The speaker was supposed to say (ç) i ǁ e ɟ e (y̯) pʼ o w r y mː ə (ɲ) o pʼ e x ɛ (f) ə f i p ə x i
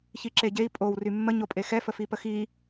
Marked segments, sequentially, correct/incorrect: correct, incorrect, correct, correct

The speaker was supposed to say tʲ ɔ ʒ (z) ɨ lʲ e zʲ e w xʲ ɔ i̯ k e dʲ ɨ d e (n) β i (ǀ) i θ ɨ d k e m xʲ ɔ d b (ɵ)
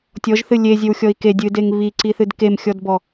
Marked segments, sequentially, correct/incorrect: incorrect, incorrect, correct, incorrect

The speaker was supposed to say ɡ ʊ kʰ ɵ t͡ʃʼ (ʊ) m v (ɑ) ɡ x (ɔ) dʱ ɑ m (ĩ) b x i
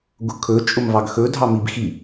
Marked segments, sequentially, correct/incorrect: correct, correct, incorrect, incorrect

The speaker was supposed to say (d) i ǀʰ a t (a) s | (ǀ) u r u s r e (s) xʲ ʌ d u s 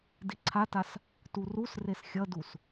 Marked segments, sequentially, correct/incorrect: correct, correct, incorrect, correct

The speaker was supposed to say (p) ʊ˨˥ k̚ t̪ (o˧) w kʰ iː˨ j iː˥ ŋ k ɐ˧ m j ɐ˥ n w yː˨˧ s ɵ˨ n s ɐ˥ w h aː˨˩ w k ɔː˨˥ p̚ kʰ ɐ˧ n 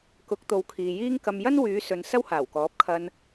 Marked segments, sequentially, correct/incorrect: incorrect, incorrect

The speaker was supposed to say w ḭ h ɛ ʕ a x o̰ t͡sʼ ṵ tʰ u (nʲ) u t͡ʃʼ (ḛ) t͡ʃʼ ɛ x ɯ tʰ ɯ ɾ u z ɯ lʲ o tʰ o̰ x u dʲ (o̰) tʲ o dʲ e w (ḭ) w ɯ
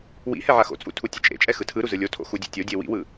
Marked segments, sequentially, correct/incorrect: incorrect, correct, incorrect, correct

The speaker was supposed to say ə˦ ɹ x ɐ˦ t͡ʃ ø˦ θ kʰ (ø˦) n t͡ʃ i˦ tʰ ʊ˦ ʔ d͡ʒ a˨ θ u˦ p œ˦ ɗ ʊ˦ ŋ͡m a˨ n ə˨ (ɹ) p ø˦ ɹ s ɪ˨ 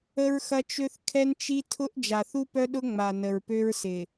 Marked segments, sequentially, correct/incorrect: incorrect, correct

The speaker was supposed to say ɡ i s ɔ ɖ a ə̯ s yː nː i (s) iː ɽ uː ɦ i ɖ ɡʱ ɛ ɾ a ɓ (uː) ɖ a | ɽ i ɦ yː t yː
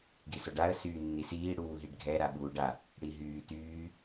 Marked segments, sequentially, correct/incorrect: correct, correct

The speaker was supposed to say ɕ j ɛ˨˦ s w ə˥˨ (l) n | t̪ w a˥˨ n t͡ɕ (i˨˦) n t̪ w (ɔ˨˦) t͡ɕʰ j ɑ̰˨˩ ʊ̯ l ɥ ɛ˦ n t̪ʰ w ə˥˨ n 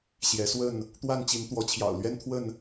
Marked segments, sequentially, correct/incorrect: incorrect, correct, correct

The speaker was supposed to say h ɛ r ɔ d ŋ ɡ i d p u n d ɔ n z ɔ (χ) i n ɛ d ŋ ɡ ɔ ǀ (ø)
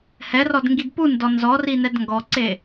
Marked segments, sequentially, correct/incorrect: incorrect, incorrect

